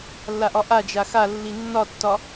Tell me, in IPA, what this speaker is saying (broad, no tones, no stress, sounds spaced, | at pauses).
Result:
lː a ʔ ɒ ʔ a d͡ʒ a x a lː i nː ɒ tː ɒ